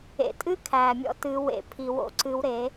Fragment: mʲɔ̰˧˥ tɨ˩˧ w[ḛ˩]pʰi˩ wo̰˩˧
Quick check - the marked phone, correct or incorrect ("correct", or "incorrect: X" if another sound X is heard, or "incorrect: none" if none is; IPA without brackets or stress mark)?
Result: incorrect: ḛ˩˧